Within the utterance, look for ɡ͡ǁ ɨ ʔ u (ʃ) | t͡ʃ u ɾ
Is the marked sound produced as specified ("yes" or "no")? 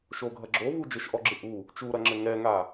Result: no